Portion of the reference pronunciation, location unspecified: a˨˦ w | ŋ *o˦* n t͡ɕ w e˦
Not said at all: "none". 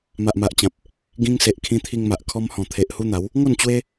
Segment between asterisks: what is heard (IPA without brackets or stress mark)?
o˥˧